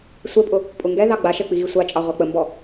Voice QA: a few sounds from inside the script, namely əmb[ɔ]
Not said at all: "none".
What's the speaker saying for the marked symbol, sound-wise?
ɔ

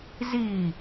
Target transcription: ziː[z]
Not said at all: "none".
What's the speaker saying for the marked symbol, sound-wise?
none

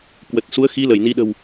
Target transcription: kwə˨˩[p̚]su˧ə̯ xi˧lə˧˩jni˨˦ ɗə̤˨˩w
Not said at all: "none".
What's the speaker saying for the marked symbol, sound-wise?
t̚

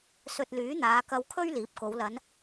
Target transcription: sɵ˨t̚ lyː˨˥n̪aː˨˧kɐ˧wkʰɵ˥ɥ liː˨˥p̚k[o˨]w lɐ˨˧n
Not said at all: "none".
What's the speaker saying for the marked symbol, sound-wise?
o˨˧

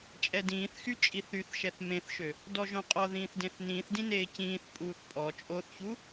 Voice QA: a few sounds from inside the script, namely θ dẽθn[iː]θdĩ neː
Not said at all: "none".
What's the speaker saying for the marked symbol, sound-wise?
ĩː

